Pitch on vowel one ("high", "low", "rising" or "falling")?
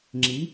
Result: rising